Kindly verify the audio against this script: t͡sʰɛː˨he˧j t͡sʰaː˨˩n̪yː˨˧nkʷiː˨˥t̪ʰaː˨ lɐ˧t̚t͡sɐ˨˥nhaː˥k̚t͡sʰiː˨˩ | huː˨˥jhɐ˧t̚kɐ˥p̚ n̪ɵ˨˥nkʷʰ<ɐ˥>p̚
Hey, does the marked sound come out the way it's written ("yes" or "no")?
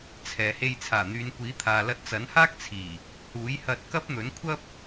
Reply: yes